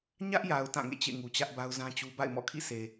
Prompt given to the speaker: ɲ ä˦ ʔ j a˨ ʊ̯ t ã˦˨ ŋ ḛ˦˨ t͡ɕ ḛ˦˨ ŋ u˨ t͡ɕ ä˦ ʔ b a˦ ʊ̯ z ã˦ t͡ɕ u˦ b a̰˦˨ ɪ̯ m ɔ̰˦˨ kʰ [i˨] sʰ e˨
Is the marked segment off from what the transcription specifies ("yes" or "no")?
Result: yes